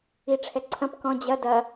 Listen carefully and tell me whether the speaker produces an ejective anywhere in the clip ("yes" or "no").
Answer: no